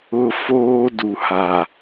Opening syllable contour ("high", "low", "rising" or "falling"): high